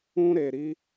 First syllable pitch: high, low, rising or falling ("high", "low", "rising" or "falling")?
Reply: high